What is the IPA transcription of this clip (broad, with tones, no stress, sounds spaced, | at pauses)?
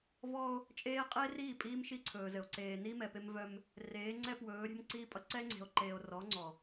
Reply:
v ɔ˦ o̯ | t͡ʃʼ eː˦ qʼ eː˦ r iː˦˨ pʼ iː˦ m ʃ i˦ ǀʰ ɵː˨ z ɘ˨ o̯ ǀ eː˨ n i˦ m ɛ˨ p e˦ m v œ˦ m | r eː˨˦ ŋ͡ǀ ɛ˦ p w ɵː˨˦ ɾʲ ɛ̤˦ m ǀ iː˦ pʼ ʌ˦ ǀ ɛ˦ ŋ͡ǀ e̤˨ o̯ ǃ eː˨ o̯ r ɔ˨˦ ŋ͡ǀ ɔ˨